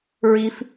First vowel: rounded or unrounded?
unrounded